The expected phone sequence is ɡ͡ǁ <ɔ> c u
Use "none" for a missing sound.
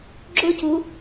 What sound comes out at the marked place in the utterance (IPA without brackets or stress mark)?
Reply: ʊ